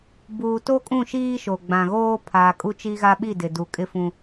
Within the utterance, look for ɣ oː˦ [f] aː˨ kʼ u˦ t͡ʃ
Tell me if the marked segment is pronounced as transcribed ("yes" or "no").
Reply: no